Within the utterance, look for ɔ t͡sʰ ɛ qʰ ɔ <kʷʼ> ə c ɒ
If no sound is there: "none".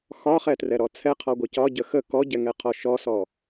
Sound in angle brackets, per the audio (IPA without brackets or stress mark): ɡʷ